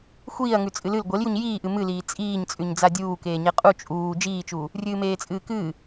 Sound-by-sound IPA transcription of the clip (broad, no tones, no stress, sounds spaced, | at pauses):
xʷ iː ɐ̯ ŋ ʉ t͡sʼ ɨ l ɨ l ɡʷ e l j u ɲ j iː ʔ ɨ m ɨ l iː t͡sʼ iː ɲ t͡sʼ ʉ ɲ d͡z a dʲ uː k eː ɲ e qʼ u t͡ʃʼ uː d͡ʒ iː t͡ʃ uː | rʲ ɨː m eː t͡sʼ ɨː k ɨː